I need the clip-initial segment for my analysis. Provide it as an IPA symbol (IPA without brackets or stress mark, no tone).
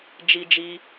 d͡ʒ